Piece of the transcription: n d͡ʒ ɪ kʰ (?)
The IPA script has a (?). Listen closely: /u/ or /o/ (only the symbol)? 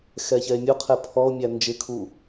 u